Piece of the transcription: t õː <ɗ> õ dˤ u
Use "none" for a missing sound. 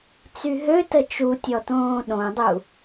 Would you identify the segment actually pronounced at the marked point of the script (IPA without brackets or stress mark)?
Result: ɗ